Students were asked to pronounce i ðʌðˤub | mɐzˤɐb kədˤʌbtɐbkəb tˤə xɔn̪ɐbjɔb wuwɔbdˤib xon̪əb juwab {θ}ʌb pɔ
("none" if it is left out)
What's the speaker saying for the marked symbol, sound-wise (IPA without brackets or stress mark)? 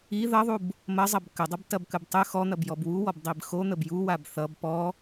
θ